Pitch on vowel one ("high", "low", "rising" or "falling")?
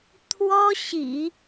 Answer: high